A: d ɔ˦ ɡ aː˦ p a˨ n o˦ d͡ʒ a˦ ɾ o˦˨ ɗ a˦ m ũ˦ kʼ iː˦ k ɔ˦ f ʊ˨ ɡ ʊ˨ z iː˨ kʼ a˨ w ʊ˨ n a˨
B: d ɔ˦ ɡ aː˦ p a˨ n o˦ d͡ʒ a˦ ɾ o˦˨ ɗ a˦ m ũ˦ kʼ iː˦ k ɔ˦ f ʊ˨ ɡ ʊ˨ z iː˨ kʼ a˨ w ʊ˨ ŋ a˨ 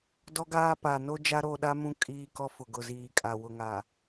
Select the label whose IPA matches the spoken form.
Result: B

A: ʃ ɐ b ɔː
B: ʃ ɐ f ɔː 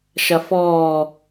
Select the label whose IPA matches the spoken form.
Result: B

